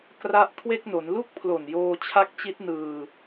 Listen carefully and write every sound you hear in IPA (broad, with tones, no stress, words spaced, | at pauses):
kra˦˥ʔkʰwe˥˩k̚no˩˦n lu˥˩k̚pʰlo˨˩njoː˧ t͡ɕʰa˦˥k̚t͡ɕi˦˥t̚nɯː˧